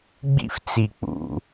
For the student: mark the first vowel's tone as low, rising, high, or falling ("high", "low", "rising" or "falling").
high